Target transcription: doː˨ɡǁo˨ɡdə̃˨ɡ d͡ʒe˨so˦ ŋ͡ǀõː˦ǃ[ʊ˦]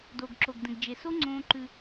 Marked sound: incorrect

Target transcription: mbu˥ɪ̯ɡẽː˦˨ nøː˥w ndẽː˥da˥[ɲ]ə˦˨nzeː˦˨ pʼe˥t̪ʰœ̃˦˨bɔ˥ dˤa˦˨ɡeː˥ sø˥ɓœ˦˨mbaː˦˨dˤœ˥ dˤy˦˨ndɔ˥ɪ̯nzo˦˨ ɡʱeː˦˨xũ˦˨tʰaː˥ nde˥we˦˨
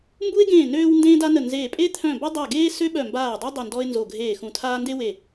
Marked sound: incorrect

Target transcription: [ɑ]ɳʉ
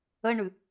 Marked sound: incorrect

